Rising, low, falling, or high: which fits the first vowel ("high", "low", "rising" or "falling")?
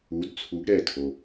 rising